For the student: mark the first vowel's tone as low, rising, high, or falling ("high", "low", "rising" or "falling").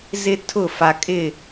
high